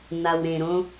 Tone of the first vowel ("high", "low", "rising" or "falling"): low